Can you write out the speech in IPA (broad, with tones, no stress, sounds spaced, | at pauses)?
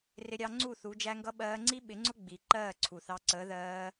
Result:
r ɪ˧ ɾʲ ɑ˧ ŋ͡ǀ u˦˨ θ u˨˦ d͡ʒ æ˦ ŋ ɡ ʌ˦ ɓ ɜː˧ ŋ͡ǀ i˦ ɓ ɪ˨˦ ŋ͡ǀ ʊ˦ ɡ͡b i˨ ǃ ɜː˦˨ ǀʰ u˨ θ ɑ˧ ǀ əː˨˦ ð ɜː˧